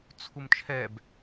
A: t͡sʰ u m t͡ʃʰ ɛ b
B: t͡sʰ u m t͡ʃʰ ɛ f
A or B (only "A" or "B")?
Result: A